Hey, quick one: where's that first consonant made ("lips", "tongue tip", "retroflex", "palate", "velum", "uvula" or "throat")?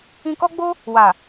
velum